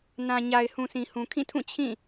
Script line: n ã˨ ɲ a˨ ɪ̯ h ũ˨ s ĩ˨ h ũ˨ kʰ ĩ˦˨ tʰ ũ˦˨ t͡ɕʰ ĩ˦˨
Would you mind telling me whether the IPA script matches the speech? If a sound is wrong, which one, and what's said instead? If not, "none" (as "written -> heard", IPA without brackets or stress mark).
none